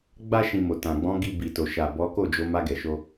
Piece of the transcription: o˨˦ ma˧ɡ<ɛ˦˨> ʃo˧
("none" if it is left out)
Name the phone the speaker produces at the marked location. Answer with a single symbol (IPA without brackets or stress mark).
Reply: ɛ˨